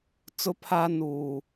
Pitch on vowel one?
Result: high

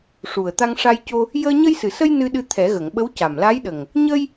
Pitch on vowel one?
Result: low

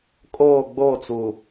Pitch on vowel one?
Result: falling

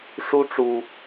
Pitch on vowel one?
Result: high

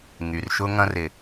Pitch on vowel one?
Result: low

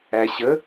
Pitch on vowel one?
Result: low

